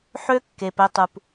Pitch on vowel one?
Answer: high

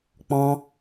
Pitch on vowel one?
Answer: high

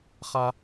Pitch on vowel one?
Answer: high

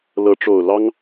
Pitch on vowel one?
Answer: rising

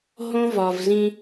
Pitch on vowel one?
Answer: high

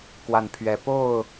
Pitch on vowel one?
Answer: low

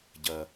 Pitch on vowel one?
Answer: low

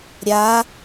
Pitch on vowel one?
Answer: rising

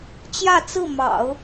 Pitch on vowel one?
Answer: falling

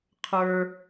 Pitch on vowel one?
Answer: low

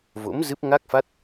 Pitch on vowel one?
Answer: rising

